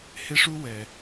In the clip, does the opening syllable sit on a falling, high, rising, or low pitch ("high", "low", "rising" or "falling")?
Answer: high